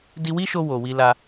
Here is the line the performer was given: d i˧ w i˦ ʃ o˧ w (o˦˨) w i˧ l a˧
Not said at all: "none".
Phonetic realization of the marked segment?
o˨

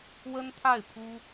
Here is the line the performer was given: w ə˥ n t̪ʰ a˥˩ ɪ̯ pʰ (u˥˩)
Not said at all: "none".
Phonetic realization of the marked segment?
u˥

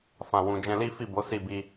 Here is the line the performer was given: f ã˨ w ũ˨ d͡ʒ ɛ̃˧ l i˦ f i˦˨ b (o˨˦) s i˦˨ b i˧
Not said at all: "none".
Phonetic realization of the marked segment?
o˨˦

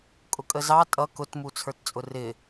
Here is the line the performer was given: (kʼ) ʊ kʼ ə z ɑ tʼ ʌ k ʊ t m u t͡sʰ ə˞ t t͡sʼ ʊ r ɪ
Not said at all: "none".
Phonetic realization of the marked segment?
kʼ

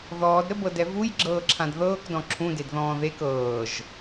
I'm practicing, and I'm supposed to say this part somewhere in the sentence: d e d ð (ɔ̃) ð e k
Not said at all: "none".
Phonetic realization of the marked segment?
ɔ̃ː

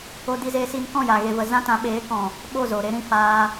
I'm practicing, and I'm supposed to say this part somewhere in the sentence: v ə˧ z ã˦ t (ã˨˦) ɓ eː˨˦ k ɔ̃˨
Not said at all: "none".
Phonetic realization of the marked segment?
ã˨˦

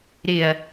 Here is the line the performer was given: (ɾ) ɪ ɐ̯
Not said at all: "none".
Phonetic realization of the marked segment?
ɾ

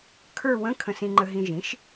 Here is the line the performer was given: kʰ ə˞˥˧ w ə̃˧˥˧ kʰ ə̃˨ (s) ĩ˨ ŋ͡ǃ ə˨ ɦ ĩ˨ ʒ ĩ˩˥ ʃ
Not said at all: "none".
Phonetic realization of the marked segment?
s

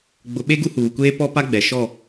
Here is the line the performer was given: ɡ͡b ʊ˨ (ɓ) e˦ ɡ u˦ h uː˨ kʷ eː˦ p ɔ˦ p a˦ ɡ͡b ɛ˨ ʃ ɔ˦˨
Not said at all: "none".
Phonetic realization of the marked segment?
ɓ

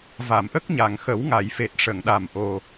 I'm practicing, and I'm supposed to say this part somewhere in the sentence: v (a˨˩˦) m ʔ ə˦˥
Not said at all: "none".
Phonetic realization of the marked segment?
a˨˩˨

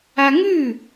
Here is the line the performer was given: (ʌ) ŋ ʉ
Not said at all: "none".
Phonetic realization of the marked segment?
a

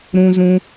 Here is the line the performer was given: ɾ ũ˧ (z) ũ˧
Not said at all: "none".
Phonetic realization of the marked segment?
z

